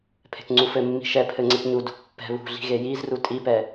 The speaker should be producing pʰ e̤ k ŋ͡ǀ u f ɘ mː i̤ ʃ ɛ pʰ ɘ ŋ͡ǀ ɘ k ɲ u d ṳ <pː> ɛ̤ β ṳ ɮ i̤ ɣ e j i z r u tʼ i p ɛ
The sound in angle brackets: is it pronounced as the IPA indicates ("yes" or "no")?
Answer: yes